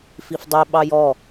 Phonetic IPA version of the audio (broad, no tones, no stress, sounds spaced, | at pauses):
f i f dˤ i ɓ ɑ j ɔ